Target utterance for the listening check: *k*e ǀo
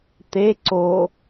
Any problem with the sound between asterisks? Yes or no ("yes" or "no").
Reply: yes